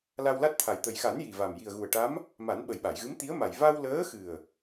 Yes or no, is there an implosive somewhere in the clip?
yes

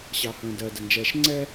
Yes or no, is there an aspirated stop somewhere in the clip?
no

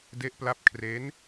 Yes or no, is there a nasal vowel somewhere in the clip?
no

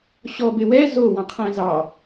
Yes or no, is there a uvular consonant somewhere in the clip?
yes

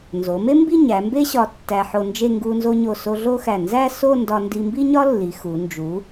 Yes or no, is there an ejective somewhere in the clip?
no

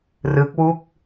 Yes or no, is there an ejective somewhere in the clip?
no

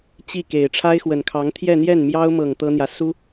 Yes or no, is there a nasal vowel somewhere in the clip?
no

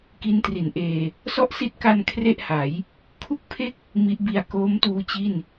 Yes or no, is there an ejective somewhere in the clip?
no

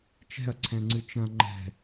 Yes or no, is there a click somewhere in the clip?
yes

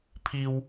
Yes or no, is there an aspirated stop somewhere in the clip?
yes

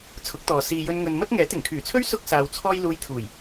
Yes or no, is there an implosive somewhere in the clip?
no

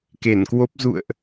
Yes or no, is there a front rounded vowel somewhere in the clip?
no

